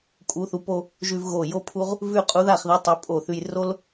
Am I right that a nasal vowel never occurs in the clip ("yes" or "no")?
yes